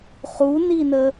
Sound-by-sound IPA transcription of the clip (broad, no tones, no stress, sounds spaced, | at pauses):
χ u n i n ə